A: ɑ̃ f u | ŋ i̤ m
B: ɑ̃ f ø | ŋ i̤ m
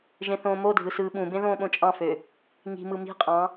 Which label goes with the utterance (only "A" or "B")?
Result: B